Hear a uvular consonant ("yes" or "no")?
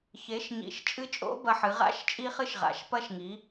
yes